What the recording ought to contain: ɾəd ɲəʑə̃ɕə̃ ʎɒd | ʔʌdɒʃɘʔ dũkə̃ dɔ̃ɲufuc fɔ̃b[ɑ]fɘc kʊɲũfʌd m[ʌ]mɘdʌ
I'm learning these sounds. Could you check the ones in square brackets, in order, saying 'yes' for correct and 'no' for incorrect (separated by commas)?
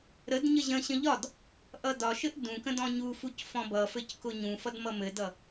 no, yes